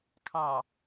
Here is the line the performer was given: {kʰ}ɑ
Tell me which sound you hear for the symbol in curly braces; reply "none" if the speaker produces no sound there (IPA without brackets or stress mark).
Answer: kʰ